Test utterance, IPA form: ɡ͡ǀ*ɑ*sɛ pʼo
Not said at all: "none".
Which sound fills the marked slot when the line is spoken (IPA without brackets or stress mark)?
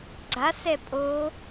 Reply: a